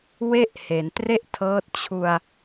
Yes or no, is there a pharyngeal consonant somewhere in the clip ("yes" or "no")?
no